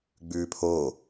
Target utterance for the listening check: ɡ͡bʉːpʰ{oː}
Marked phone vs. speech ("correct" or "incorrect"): correct